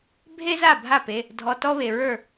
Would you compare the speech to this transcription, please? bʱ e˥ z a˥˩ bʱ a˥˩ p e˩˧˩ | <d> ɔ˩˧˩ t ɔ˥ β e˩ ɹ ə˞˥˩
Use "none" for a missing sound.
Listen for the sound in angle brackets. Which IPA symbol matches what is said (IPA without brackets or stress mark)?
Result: dʱ